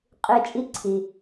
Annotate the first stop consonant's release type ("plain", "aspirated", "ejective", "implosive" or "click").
ejective